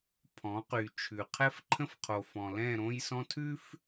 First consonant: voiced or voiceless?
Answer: voiceless